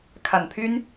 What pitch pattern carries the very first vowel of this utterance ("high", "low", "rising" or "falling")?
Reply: low